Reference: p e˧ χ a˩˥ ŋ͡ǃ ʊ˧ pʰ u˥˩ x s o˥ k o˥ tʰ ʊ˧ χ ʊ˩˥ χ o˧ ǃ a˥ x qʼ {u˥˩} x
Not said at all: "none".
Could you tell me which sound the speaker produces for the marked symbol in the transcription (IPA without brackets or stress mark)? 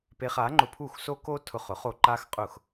ʊ˥˩